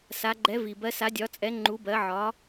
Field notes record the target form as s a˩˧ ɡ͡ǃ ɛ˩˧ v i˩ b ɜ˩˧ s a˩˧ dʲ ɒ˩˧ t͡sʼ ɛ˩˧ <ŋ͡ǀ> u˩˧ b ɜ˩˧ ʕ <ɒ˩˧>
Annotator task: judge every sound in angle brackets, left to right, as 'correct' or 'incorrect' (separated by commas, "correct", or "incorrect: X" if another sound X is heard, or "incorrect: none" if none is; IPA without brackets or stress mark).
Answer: incorrect: ŋ͡ǃ, correct